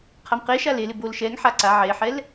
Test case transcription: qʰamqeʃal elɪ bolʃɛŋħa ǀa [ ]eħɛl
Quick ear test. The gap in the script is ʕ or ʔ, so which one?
ʕ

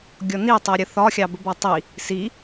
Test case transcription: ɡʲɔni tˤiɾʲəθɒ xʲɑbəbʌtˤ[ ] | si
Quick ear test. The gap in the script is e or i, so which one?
i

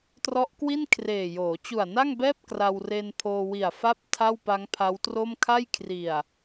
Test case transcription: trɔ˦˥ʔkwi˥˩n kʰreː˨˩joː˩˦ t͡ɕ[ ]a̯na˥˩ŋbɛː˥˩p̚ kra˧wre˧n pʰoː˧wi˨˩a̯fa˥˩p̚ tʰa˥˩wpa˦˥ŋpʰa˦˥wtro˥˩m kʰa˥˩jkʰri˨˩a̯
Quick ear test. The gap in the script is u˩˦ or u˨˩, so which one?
u˨˩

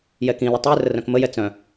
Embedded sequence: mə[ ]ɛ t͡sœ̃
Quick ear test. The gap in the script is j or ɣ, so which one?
j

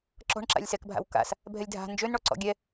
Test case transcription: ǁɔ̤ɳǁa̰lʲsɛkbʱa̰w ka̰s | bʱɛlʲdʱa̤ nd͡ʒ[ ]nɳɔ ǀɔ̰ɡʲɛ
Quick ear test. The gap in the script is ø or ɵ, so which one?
ø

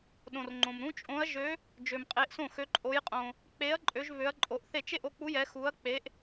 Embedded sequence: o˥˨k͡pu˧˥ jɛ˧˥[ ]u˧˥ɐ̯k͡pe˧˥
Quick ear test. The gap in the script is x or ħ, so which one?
x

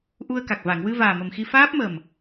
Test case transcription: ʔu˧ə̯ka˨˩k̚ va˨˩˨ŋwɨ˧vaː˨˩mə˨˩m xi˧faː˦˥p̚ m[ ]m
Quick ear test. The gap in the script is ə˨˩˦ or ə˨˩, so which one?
ə˨˩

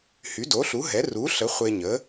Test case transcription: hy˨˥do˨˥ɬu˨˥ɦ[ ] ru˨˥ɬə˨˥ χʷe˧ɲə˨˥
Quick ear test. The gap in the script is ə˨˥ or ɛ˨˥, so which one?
ɛ˨˥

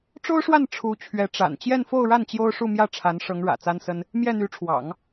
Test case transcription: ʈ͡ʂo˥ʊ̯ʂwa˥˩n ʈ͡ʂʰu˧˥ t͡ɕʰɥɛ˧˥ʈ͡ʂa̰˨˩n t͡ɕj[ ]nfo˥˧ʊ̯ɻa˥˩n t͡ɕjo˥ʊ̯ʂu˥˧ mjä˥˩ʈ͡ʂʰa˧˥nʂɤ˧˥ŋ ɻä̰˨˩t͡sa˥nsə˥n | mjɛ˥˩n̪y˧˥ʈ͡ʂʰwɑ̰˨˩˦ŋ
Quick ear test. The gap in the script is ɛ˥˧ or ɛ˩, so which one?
ɛ˥˧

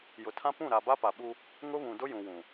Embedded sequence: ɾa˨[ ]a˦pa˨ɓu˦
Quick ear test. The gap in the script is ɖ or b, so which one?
b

